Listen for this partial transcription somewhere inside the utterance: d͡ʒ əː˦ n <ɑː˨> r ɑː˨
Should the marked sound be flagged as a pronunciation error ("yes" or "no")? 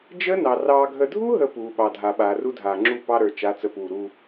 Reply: yes